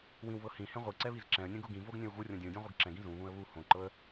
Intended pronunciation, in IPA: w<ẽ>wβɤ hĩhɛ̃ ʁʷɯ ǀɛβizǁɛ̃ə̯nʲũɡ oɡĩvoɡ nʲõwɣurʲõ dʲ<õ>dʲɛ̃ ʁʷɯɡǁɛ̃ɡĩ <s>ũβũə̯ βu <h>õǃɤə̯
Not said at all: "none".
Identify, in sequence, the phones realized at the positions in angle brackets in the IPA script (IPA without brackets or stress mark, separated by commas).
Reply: ĩ, ũ, z, h